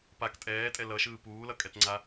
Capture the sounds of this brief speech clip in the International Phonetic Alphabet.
p a k tʼ ɛː tʼ ɛ l ʌ ʃ ɯː p uː l ʌ kʼ ɛ t ŋ͡ǀ a

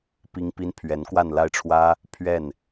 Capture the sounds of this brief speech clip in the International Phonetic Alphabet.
p i˥ ŋ p i˥ n pʰ ɥ ɛ˧˥ n k w a˥˧ n l a˥˩ ɪ̯ ʈ͡ʂʰ w ä˥ | pʰ ɥ ɛ˥˩ n

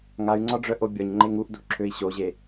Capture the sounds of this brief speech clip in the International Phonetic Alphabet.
ŋ a y̯ ŋ͡ǀ ɒ ɖ͡ʐ œ ʔ o bʲ ɒ ɲ ŋ͡ǃ e ŋ u ʔ d o̤ ǁʰ ø i̯ ɕ o ʑ e

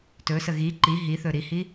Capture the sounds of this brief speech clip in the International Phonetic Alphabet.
t ɵ s ə ɣ i ǃ i ɦ i θ ɵ ɾ i h i

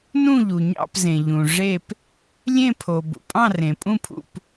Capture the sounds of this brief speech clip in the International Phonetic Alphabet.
n ũ˥˨ ʎ u˩ ɲ ɑ̰˥˨ p z ẽ˩ ʎ ũ˩ ʐ e˥˨ p | lʲ ẽ˥˨ pʰ o˩ b ṵ˩ pʼ ɑ̃˥˨ r ẽ˩ pʼ ũ˥˨ pʰ ṵ˥˨ p

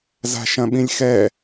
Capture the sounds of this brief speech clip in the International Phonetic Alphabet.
z a̤ ʃ ɐ̃ ɓ ĩ lʲ x ɛ

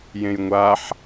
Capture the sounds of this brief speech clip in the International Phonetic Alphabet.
j ẽ j ŋʷ a ħ

